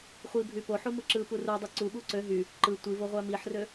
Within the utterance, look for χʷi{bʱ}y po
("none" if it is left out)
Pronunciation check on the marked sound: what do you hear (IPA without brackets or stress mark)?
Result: bʱ